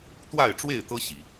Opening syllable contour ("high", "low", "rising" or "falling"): falling